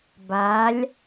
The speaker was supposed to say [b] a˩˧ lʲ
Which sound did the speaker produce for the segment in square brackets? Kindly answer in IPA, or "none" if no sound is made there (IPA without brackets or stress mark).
b